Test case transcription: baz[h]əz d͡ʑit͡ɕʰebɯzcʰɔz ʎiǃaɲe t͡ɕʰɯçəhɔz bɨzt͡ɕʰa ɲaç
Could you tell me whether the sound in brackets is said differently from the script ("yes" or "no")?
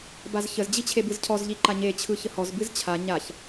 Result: yes